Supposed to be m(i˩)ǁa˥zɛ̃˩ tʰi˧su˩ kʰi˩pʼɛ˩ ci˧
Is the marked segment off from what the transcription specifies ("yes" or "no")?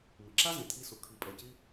no